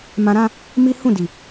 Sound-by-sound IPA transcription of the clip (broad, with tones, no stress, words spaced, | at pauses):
mã˧ɾã˦ | mi˦ hũ˦˨di˨